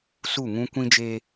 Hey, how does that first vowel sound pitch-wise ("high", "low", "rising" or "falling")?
falling